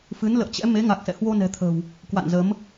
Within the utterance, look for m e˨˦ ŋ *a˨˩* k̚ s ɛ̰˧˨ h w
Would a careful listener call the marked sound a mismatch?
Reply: no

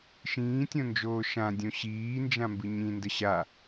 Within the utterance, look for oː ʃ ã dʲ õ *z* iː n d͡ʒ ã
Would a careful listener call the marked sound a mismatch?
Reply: yes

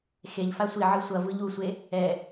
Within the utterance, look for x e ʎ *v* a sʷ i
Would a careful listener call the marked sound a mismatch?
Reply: yes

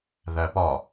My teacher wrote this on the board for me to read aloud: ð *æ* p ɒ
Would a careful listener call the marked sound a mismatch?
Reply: no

